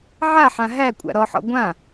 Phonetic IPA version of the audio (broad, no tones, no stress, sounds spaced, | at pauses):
ʕ a ħ ã ɦ æ kʷʼ a̰ ɾ ɔ ħ ɔ̰ ɡʷ ã